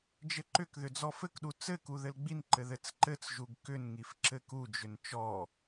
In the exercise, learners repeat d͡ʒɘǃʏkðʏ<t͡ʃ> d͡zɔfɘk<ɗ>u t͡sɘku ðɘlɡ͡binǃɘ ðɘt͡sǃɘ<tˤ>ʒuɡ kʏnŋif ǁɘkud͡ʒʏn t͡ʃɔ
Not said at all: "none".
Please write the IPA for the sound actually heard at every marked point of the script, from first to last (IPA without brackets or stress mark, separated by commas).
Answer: none, ɗ, t͡s